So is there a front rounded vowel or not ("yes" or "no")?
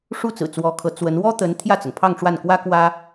no